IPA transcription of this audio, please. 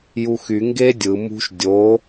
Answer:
juxy ŋɡe dʲɯ mṳʃ dʲo

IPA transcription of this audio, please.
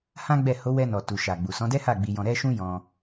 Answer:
hã˦ɡ͡bɛ˦˨ ho˨˦wɛ˧nɔ˨ tu˨ʃa˨ ɡ͡bu˨sɔ̃˨˦dɛ˦ha˦˨ ɡ͡bi˧jɔ̃˧ ɾɛ˦ ʃũ˦jɔ̃˧

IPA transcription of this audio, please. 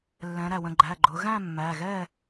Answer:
lːɛ̃˩˧ɾæ˩wə̃˩˧˩ɡ͡ǃæ˩˧˩ ɡ͡ǃʊ˩˧ɣæ̃˥˨ mːæ˩˧˩ɣɛ˥˨

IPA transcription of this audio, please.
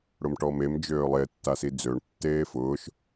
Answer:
ɽʊmʈɔmem d͡ʒøːlˠe tːasid͡zøɳ tːeːfʊːʃ

